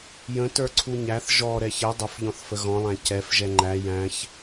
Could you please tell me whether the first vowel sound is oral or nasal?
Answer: nasal